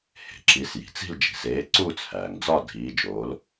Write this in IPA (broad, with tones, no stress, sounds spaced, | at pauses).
h e̤˩ ǁ i˨˥ s j i̤˩ t͡s i̤˥˧ l d͡ʒ i̤˩ s eː˨˥ ǀ uː˥˧ t͡s h æː˩ ŋ d͡z ɒ˥˧ dʱ iː˨˥ d͡ʒ oː˨˥ l